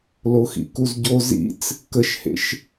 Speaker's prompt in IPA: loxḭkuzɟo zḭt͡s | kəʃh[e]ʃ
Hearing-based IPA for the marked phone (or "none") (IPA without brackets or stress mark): ḛ